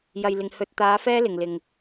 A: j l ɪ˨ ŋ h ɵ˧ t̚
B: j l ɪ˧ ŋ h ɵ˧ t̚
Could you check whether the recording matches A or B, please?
A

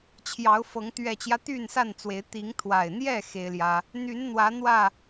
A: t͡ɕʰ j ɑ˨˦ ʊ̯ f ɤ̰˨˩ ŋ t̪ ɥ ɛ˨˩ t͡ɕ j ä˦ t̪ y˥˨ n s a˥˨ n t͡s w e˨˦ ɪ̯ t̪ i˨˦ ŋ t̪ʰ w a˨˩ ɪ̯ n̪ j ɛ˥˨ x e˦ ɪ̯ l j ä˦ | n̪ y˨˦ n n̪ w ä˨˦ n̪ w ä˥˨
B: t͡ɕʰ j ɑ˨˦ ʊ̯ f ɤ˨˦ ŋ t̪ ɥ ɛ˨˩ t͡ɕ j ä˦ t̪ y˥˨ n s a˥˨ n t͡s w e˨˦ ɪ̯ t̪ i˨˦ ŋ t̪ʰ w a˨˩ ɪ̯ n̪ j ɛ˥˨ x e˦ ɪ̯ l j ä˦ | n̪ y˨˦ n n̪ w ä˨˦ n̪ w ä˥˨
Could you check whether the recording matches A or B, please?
B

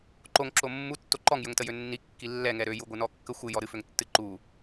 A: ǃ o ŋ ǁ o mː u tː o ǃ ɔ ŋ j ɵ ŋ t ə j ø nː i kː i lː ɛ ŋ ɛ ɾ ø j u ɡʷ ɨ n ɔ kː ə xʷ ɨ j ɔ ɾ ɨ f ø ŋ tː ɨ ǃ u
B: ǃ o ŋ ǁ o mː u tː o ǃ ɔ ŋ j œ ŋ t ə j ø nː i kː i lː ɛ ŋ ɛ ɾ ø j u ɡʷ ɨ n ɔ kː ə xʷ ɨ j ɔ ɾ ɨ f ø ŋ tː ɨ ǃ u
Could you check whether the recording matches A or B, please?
A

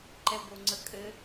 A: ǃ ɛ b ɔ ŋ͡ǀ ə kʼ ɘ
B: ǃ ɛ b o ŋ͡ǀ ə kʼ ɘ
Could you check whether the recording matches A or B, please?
B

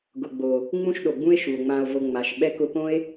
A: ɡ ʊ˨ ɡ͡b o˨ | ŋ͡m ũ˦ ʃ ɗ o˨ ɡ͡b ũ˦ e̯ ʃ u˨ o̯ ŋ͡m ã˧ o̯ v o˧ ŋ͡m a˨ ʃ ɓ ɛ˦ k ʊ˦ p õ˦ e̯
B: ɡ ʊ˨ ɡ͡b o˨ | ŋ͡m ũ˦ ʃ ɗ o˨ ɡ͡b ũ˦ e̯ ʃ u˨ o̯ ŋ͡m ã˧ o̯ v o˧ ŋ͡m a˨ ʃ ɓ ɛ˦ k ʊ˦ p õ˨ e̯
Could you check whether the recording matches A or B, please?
A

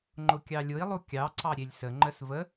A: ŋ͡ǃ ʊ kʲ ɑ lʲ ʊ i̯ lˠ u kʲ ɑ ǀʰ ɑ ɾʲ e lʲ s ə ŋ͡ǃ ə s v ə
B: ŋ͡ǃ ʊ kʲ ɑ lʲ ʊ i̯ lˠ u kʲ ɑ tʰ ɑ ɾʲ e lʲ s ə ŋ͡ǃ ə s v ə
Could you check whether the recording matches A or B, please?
A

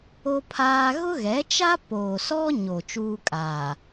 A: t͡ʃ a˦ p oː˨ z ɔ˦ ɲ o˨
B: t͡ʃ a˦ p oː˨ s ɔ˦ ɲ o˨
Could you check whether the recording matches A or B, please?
B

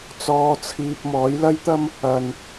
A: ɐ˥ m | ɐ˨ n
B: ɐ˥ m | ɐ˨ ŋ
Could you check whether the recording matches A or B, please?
A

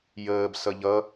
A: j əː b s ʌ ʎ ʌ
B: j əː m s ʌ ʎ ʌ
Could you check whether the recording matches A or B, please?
A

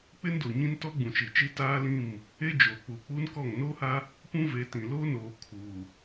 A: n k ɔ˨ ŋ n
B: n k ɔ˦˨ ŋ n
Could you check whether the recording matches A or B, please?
B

